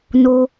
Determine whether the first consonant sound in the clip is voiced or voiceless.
voiced